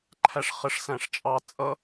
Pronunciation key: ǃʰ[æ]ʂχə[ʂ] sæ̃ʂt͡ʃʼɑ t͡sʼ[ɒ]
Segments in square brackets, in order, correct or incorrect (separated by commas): correct, correct, incorrect